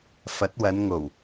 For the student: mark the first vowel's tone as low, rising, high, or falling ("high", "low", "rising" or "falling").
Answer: rising